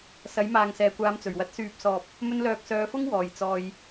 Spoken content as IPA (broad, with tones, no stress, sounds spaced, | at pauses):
s ɐ˨˥ j m aː˨ ŋ s ɛː˨ kʷ aː˧ m t͡s ɵ˨˩ ɥ w ɐ˧ t̚ s yː˨ p̚ s ɔː˨ p̚ | m ɵ˧ n l œː˨ k̚ s œː˨˧ f ʊ˥ ŋ w ɔː˨˩ j t͡s ɔː˨ j